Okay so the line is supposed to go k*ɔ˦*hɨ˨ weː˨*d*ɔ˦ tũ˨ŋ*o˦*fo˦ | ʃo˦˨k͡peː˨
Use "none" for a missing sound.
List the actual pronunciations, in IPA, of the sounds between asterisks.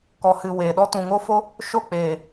ɔ˨, ɗ, o˦

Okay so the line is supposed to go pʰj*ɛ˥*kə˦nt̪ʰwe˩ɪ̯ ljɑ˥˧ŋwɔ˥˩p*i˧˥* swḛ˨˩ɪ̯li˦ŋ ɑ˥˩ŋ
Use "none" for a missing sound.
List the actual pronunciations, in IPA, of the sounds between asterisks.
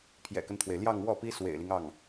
ɛ̰˨˩, i˥

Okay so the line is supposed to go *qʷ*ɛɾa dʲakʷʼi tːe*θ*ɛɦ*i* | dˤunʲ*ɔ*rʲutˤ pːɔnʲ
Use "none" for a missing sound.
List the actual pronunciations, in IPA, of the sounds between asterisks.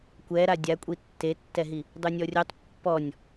kʷ, tː, i, ɔ

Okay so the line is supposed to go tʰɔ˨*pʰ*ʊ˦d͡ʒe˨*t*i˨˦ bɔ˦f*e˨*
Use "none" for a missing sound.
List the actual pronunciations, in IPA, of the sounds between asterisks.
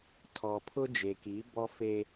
pʰ, k, e˦

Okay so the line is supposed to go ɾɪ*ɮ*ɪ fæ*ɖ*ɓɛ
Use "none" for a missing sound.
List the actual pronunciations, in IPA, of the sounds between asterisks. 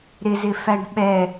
z, ɖ

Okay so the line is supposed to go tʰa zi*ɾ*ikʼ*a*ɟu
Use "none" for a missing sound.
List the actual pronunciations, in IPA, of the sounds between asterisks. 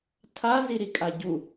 ɾ, a

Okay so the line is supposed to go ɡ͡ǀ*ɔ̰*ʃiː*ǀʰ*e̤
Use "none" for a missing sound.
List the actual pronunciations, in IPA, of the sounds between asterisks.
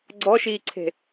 ɔ, ǀʰ

